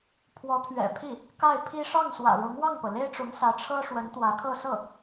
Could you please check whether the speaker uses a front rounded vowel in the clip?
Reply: no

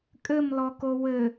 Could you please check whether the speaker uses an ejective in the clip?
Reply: yes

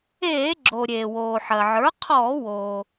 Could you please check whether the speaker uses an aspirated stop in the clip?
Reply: yes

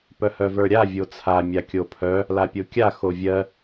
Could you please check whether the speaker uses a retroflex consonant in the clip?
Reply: no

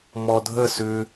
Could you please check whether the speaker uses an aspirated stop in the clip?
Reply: no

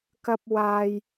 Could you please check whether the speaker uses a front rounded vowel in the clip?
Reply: no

